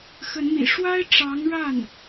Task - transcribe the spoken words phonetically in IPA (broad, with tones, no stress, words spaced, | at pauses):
xə˧˥nmḭ˨˩ ʂwa˥ɪ̯ʈ͡ʂɑ˧˥ŋɻa˥˩n